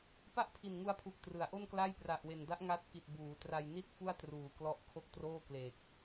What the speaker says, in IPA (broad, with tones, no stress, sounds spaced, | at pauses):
p a˥˩ ʔ pʰ i˨˩ n ŋ u˧ a̯ pʰ u˨˩ k̚ t r ɯ˩˦ a̯ ʔ o˥˩ n k l a˥˩ j p r a˨˩ ʔ w e˨˩ n d a˦˥ ʔ ŋ a˦˥ t̚ k i˨˩ t̚ b uː˩˦ t r a˧ j n i˥˩ t̚ f u˥˩ a̯ t r uː˨˩ k l ɔ˦˥ ʔ kʰ o˥˩ k̚ t r oː˥˩ k l e˨˩ k̚